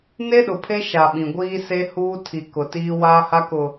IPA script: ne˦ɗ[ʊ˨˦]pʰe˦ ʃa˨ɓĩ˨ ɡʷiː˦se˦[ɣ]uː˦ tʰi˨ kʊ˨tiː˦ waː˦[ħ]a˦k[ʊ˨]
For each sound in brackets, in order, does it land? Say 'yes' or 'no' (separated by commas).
no, no, no, yes